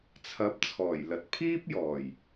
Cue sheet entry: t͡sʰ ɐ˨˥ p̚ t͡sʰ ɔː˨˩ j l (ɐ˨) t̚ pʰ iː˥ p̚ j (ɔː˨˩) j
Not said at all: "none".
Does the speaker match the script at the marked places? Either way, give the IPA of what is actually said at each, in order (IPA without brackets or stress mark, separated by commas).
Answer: ɐ˨, ɔː˨˩